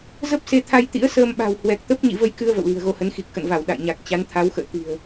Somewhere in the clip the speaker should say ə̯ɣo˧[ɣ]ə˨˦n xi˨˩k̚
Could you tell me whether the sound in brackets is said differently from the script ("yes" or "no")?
yes